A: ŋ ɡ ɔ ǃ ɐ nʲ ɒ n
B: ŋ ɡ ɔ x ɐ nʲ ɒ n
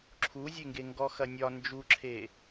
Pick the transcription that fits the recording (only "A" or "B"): B